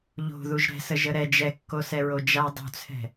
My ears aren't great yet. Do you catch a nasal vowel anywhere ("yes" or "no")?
no